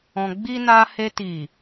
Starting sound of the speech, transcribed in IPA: ɔ̃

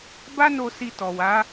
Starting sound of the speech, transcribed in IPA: b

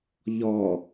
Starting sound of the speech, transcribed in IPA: ʎ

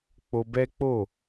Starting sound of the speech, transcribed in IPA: k͡p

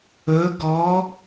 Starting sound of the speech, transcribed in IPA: ɵ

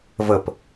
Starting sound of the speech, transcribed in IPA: v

